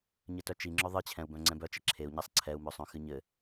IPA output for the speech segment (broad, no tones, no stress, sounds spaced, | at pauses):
ɲ ɘ t œ t͡ʃ i ŋ͡ǁ œ ðˤ ɨ t͡ɕʰ ɛ̃ u̯ b œ̃ ŋ͡ǀ ɛ̃ b œ t͡ʃ ɘ ǁʰ e u̯ ɲ ɛ sˤ ǀʰ ɛ u̯ m œ sˤ œ̃ x ɨ ɲ ɘ